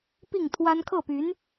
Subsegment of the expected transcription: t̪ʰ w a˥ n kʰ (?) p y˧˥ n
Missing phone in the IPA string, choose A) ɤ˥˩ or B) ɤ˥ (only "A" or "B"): A